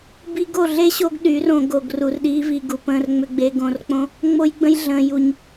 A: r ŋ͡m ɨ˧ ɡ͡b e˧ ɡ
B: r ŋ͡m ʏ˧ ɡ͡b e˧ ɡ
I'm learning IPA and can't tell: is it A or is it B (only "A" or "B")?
B